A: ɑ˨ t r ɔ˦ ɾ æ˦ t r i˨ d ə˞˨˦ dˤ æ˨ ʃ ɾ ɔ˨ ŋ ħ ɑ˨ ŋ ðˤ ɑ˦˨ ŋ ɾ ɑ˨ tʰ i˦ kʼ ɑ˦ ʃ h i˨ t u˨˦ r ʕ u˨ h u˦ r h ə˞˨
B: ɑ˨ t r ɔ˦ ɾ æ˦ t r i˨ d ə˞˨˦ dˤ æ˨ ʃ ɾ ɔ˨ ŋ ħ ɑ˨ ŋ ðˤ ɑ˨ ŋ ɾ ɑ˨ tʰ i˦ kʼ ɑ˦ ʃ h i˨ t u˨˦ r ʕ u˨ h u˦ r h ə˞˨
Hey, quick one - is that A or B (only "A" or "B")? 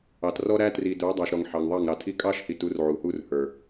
A